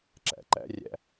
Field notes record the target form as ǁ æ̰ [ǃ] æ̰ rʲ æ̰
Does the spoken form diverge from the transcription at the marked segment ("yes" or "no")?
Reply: no